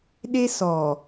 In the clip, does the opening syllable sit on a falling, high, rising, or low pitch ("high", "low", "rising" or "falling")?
high